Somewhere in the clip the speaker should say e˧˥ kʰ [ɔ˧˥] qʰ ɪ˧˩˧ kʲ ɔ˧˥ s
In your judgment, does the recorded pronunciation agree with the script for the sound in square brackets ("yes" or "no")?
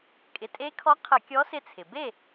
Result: yes